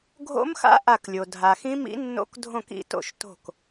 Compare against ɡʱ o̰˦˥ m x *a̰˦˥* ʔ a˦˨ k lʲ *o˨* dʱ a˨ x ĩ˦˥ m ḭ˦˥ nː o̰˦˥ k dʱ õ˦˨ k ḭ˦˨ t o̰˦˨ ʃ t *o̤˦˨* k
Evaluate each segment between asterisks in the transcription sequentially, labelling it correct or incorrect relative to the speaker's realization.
correct, correct, correct

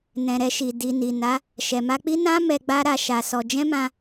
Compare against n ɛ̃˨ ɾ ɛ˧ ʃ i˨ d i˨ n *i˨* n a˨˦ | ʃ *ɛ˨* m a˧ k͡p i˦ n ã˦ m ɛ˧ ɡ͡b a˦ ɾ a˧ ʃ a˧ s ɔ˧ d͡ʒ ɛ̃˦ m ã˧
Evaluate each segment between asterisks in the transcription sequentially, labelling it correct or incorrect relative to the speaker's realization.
correct, correct

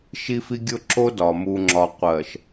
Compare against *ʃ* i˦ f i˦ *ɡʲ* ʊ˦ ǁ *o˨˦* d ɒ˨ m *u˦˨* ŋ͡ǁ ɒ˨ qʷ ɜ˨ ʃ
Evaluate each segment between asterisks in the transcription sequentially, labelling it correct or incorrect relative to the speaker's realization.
correct, correct, incorrect: o˦, incorrect: u˨

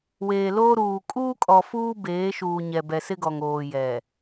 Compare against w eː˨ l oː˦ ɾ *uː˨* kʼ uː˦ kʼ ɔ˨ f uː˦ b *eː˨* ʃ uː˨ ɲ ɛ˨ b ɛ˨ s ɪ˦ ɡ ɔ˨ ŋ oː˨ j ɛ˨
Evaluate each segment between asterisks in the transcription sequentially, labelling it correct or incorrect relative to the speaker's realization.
correct, incorrect: eː˨˦

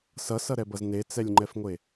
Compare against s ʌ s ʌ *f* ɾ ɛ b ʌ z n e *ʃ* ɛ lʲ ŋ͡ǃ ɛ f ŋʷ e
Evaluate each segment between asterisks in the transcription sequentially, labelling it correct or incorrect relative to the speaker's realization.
incorrect: none, incorrect: t͡s

